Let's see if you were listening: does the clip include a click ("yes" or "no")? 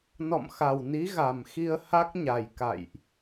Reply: no